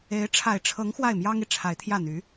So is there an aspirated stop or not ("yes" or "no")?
yes